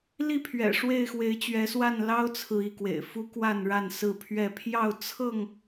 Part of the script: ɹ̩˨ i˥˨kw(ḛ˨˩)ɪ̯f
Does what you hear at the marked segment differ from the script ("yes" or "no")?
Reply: no